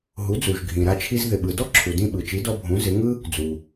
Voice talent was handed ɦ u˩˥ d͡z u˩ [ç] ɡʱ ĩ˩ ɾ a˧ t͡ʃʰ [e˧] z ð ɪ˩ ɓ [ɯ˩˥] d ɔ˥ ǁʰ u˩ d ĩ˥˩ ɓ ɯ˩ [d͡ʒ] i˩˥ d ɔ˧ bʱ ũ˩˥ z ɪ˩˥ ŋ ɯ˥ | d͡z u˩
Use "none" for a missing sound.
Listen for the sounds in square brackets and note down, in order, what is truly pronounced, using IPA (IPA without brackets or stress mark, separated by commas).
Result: ʒ, i˧, ɯ˩, t͡ʃ